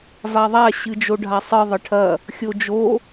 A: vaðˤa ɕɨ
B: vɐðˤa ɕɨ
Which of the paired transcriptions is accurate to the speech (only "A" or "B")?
A